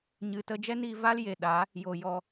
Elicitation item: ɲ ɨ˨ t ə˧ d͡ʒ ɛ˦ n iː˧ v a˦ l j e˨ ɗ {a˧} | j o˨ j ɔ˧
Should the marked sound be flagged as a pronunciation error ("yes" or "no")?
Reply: yes